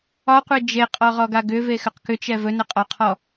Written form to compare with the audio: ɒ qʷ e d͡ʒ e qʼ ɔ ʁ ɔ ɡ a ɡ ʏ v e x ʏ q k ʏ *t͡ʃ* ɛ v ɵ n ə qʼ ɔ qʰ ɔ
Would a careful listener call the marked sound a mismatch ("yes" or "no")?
no